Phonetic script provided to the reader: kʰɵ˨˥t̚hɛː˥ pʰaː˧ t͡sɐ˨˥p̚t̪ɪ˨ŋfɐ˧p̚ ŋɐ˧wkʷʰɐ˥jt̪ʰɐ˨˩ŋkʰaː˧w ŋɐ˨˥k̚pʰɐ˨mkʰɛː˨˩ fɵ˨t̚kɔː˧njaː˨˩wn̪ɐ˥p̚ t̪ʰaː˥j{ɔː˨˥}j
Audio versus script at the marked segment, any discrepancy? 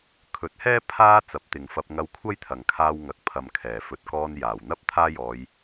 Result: yes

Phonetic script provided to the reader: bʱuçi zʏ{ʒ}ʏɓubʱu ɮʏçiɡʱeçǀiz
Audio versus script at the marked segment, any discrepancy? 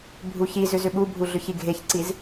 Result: yes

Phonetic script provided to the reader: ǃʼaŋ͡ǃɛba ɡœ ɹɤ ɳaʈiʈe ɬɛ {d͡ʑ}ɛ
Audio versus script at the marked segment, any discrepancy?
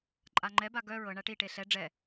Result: yes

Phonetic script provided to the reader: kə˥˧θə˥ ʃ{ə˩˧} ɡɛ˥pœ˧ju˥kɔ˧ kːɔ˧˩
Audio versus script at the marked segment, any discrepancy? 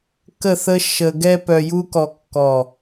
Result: yes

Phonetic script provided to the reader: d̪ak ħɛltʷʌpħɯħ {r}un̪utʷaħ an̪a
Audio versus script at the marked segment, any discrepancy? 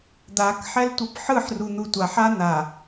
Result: no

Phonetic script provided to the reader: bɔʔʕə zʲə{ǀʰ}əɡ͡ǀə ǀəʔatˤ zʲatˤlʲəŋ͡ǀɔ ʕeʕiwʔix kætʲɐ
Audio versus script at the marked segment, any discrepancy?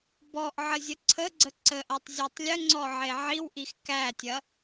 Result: no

